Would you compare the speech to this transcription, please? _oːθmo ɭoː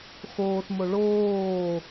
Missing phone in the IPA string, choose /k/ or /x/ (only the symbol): x